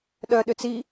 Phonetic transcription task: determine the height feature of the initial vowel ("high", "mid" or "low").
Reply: mid